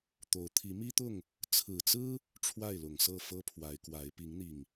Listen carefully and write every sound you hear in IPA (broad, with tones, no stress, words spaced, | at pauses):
t̪o˨˦ʊ̯ t̪ʰi˨˦mi˦t̪ʊ˥˨ŋ | t͡sʰɹ̩˨˩t͡sɹ̩˦ | ʈ͡ʂʰwa˥˨ɪ̯lʊ˨˩ŋsɤ˥˨ fɤ˦pʰwa˨˦ɪ̯kwa˨˦ɪ̯ pi˨˦ŋn̪i˨˩ŋ